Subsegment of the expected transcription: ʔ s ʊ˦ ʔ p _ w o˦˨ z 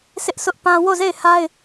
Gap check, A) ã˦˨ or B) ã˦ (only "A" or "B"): B